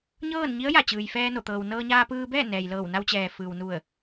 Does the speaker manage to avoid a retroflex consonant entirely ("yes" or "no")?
yes